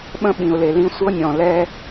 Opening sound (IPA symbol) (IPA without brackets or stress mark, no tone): ɓ